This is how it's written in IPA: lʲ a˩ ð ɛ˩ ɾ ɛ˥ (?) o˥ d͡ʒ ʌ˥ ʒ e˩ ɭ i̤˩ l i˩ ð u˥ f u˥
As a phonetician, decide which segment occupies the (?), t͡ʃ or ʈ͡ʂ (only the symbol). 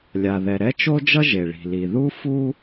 t͡ʃ